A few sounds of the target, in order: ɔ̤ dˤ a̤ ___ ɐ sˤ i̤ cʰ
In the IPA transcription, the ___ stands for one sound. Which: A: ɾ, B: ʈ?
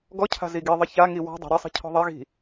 A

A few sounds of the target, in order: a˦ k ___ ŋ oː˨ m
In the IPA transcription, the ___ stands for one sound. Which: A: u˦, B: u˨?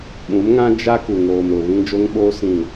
B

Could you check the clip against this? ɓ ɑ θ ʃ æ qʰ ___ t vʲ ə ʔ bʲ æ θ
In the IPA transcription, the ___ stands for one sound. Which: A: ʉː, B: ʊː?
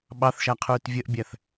A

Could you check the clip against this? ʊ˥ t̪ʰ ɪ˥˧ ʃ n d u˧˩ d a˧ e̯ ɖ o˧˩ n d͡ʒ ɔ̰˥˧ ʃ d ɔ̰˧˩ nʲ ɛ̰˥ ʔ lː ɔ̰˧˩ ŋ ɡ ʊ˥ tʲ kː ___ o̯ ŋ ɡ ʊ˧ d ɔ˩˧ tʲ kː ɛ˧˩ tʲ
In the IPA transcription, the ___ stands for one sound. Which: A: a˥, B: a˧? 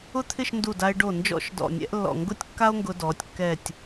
A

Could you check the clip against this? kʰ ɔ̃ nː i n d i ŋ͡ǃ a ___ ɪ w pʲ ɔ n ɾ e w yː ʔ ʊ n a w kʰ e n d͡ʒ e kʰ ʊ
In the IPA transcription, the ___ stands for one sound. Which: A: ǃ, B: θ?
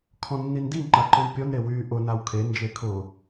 A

